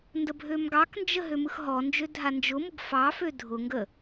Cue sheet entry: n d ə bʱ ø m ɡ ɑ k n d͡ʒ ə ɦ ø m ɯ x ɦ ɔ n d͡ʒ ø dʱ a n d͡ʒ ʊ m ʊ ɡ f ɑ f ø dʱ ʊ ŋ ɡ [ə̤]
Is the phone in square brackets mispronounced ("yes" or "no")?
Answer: yes